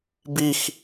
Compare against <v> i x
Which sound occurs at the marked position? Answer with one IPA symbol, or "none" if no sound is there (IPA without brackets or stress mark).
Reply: b